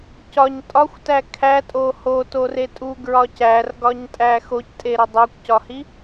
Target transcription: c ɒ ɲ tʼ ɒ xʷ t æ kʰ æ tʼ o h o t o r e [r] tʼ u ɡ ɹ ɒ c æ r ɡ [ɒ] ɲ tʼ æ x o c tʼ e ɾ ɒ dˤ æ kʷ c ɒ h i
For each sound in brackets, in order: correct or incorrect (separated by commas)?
incorrect, correct